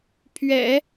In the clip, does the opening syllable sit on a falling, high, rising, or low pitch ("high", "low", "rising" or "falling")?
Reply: low